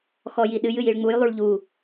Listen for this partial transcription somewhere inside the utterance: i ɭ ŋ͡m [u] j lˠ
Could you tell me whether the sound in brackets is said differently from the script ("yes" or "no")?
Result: no